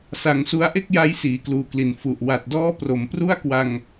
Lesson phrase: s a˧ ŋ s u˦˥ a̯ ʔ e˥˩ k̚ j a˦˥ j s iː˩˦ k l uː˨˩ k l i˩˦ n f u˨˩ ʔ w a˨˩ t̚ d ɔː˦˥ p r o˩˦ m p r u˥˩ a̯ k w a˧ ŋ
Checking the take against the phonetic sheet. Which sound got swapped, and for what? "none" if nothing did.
none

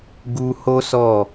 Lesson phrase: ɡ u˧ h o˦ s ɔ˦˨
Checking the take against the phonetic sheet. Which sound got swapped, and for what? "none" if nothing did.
none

